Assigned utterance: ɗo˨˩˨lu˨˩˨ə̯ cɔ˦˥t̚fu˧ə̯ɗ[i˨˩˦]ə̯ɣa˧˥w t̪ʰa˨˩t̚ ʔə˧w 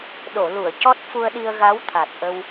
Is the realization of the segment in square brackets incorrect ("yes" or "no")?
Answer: yes